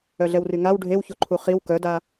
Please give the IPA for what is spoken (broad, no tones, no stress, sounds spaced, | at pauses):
œ ɮ ɛ w r y ŋ a w ɖʱ e w ç o ǃʰ u χ i w k œ d a